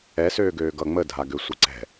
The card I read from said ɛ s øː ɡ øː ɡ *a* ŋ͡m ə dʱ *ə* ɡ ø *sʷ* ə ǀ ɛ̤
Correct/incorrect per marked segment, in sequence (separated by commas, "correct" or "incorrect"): incorrect, incorrect, correct